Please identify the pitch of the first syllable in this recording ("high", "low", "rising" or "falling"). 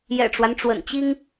low